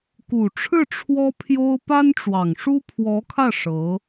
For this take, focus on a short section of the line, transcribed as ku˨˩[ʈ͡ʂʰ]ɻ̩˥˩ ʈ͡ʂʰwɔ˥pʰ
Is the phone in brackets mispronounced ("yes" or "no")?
no